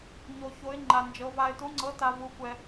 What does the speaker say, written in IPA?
ɲ o˧ ç o˧˥ ɪ̯ ŋ͡ǃ a˧ n d͡ʒ ɤ˧˥ v a˧ ɪ̯ t u˧˥ ŋ͡ǀ ɤ˧˥ t a˧ v u˧˥ kʷ ɛ˧

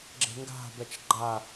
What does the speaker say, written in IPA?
ɡ͡ǁ e̤ ŋ ɡ a̤ b ɛ t͡ʃ ɡ͡ǃ a

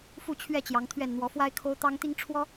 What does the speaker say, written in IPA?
f u˥˨ t͡ɕʰ ɥ ɛ˥˨ t͡ɕ j ɑ˨˦ ŋ t̪ʰ ɥ ɛ˥˨ n n̪ w ɔ˨˦ f w a˦ ɪ̯ kʰ o˦ ʊ̯ t̪ ɑ˦ ŋ t̪ i˦ ŋ ʈ͡ʂʰ w ɔ˦

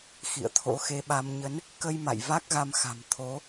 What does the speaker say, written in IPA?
x ḭ˧˨ ə̯ t̪ʰ o̰˧˥ x e˧ ɓ a˧ m ɲ ə˨˦ n | k ə˧ j m a̰˧˨ j v a˦˥ k̚ ɣ a˧ m x a̤˨˩ m t̪ʰ o˨˦

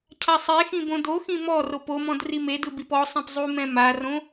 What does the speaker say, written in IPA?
cʰ a sˤ e x ĩ b õ d o x ĩ m ɔ r o p o m ɔ̃ d r i m e d ɯ b i p ɔ sˤ ẽ p zˤ u m ɛ̃ m a r õ

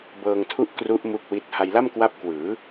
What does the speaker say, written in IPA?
b ɤː˧ ŋ tʰ u˥˩ ʔ k r u˦˥ ʔ m u˥˩ k̚ w i˥˩ t̚ h a˧ j l a˥˩ m k w a˦˥ p̚ k w ɯː˩˦

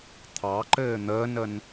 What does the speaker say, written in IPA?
t̪ʰ ɑ ǃ ɘː n̪ əː n ə n

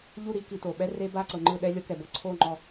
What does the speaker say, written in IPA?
ʎ u˦˨ ɾ i˦ k i˨ t o˨ ɓ ɛ˦ r e˦ b a˦˨ ǀ ɤ˨ ŋ͡ǃ ɯ˦˨ ɗ ɛ˦ lʲ ɤ˦ k ɛ˨ b ɤ˦ ǀʰ o˦˨ ŋ͡ǃ ɔ˦˨

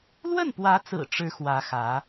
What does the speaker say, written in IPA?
l w ə˥˩ n p w ä˧˥ t͡s ɹ̩˨˩ ʈ͡ʂ ɻ̩˧˥ x w ä˧˥ x ä˧˥

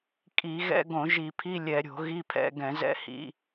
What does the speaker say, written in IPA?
kʼ i˧˩˧ ɣ ɛ̰˧˥˧ ɡ õ˧˩˧ ʒ i˧˩˧ pʰ i˧˥˧ lʲ ɛ˧˩˧ ɾʲ o̤˧˩˧ ɣ i˧˥˧ pʰ ɛ̰˧˥˧ ɡ ɛ̃˧˩˧ z ɛ̰˧˥˧ h ḭ˧˥˧

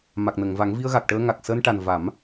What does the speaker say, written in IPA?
m a˨˩ k̚ n ə˨˩˨ ŋ v a˨˩˦ ŋ v i˧ ə̯ ɣ a˨˩ k̚ ʈ əː˧ ŋ a˨˩ k̚ s əː˧ n ʈ a˨˩ n v a˨˩˦ m

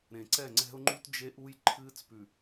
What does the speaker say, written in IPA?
ɾ ẽ˨ ǀ ɛ˦˨ ŋ͡ǀ ɛ̤˦ ʊ̯ ŋ͡ǃ u˦ t d͡ʒ e˦ ʔ u˦ j ǃʰ ɨː˦ t͡s p ʉ˨

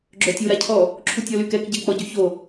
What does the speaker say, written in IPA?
ɡ͡ǁ œ tʲ u ɾ a cʰ ɔ | ǁʰ u tʲ ɔ l y k ɛ k ɟ ɛ k͡p ɔ ɟ y ç o

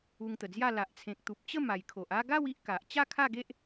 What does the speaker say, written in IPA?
u˧ ŋ t̪ ə˨˩ d͡z j a˥˧ l a˨ ʔ t͡sʰ ẽ˨ k̚ t̪ u˨ p̚ t͡ɕ ə˥˧ m a˨˩ j kʰ o˨ ʔ a˥˧ ɡ a˥˧ w i˦ ʔ k a˨ ʔ t͡ɕ a˥˧ kʰ a˥˧ ɡ e˦ ʔ

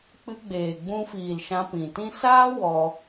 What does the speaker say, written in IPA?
k͡p ɨ˧ ɡ͡b eː˨ ɡ͡b ũ˧ f iː˨ l ʃ ã˧ p ĩ˨ t ĩ˦ s aː˦ w ɔ˧

